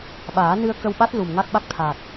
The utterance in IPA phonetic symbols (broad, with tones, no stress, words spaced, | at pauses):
ɓaː˨˩˦nɨ˧ə̯kə˧wɓa˦˥t̚ lu˨˩mŋa˦˥k̚ɓa˦˥k̚t̪ʰaː˨˩t̚